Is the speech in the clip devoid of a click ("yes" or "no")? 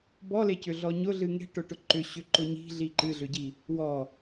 no